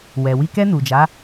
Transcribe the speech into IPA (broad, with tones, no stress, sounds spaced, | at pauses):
w ɛ˨ w i˧ k ɛ˧ n u˨ d͡ʒ a˨˦